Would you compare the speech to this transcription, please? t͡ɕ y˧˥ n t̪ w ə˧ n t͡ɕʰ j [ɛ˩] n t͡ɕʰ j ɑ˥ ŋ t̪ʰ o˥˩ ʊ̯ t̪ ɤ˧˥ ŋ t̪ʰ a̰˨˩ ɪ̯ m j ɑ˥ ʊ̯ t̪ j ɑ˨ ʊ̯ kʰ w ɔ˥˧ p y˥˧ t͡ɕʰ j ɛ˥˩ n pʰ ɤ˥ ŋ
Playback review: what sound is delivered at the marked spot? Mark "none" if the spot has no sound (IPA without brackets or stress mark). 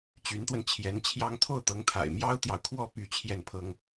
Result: ɛ˧˥